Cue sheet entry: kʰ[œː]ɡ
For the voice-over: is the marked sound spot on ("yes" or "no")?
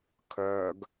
yes